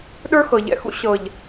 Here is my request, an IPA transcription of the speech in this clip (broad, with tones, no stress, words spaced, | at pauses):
ɗə˞˦xɤ˨ʎɛ̰˨xṵ˦ ɕɤ˨ʎ